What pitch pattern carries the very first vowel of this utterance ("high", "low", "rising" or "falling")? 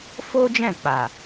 high